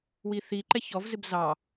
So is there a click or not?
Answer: yes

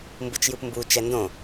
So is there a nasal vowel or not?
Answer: yes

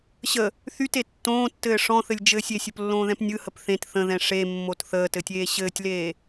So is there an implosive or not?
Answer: no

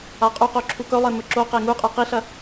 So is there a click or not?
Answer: yes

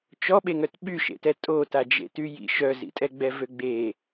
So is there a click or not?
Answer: no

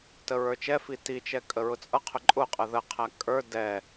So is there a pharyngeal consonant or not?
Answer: no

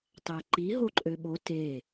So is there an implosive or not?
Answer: yes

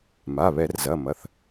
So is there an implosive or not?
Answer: no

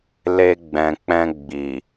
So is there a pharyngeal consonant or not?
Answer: no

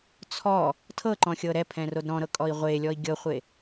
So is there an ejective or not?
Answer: yes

